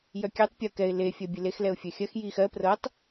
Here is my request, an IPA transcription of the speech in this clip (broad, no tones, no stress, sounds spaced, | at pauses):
j œ kʲ ɛ tˤ pʲ ɤ k ɛ ɪ̯ l e fʲ ɜ bʲ e l e x l ɛ ʊ̯ fʲ œ xʲ ɜ x j i x ɜ p r ɤ tˤ